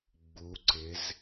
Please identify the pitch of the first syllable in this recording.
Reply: rising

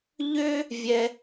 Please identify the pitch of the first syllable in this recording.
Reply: high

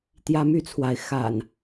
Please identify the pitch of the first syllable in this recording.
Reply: high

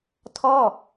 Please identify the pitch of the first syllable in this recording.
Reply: falling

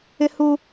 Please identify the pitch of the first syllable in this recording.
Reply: high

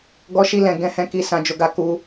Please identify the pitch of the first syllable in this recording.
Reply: high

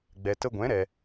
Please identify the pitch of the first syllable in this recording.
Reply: low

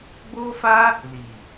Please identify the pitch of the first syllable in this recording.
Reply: high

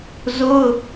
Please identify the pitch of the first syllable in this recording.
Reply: high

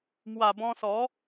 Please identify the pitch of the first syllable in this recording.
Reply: low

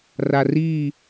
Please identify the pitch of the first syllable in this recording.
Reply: low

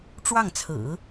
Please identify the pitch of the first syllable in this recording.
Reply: falling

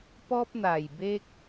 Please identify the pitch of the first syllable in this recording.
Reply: high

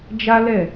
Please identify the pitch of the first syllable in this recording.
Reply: high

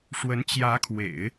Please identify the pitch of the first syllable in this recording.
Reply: rising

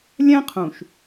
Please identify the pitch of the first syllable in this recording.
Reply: high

